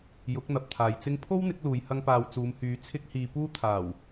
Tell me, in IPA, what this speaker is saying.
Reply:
jʊ˨˥k̚n̪ɐ˨p̚t̪ʰaː˨j t͡sɪ˧ŋpʰo˥wn̪ɪ˨˥k̚ luː˧jhɐ˥ŋpaː˧w t͡suː˨˧mhyː˨˥ t͡sʰɪ˥k̚hiː˧puː˥ t̪ʰaː˨˩w

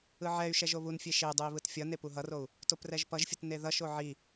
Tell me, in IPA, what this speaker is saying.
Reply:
ɯʕɛy̯ʃɛʒ oβunfʲe ʃedˤui̯ βɯtfʲʌne puɦʌrou̯ | toprɛʒpʌʒfʲɯt neðʌʃo ʕi

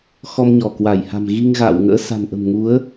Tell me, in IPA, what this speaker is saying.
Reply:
xɔ˧mɲɔ˧˩kwa˧˩jha̤˨˩m ɣi˧ŋɣa̰ː˧˨w ŋə̰ː˧˥sa̤˨˩nʔə̤˨˩mŋu˨˦ə̯

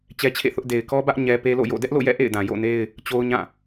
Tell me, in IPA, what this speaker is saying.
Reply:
t͡ɕɛ˦t͡ɕʰḛ˦˨θʊ˦ʔ de˨ɪ̯kɔ˦bä˦ʔ ɲɛ˦ pe˦lo̰˦˨jo̰˦˨ dɛ˦ʔlo̰˦˨jɛ̰˦˨ ʔḛ˦˨ɪ̯dã˨ jo̰˦˨ne˦ɪ̯ | t͡ɕo˦ʊ̯ɲã˦˨

